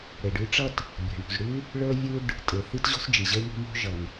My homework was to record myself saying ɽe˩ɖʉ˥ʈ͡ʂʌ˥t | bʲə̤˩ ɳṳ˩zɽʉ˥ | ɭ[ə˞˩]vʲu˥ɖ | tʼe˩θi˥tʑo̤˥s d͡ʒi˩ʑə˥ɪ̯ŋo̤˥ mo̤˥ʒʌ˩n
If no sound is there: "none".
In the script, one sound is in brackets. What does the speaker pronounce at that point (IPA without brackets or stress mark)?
ə˞˥